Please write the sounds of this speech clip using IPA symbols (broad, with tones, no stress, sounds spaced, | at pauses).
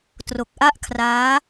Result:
t r o˨˩ k̚ ʔ a˥˩ ʔ kʰ r aː˦˥